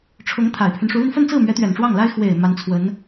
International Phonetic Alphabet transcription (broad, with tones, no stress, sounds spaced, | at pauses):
ʈ͡ʂʰ ʊ˧˥ ŋ t̪ʰ a˨˩ ɪ̯ pʰ y˦ n ʂ u˧˥ l y˧ n f ə˥˧ n t͡s ɹ̩˥˩ m ɥ ɛ˧˥ t̪ ɥ ɛ˨˩ n ʈ͡ʂ w ɑ˥˩ ŋ l a˥ ɪ̯ x w e˨˩ ɪ̯ m a˧˥ n t͡sʰ w ə˧˥ n